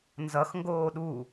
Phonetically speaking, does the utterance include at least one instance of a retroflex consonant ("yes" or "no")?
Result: no